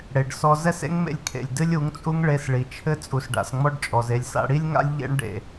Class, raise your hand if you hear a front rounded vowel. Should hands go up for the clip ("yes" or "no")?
no